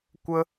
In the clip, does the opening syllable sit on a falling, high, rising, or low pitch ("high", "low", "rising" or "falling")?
high